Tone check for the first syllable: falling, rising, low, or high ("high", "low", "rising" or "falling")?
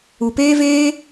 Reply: low